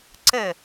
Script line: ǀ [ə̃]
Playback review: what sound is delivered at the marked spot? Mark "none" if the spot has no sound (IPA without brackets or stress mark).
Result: ə